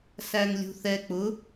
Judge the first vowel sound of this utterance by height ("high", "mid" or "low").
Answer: low